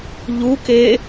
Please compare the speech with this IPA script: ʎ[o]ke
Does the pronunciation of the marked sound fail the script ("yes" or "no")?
yes